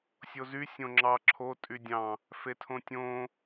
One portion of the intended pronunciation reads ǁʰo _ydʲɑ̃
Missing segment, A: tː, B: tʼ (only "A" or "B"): B